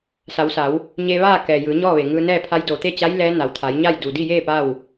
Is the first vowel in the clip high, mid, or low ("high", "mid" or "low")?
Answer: low